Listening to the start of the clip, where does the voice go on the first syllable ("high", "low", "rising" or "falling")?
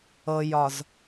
low